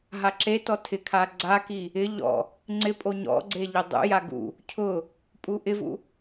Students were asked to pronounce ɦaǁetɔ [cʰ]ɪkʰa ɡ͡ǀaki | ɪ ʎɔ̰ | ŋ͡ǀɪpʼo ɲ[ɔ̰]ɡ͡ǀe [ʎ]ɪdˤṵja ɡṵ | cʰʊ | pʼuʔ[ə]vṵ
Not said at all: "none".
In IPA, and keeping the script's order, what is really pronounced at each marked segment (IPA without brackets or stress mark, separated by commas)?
tʰ, ɔ̰, ʎ, ɪ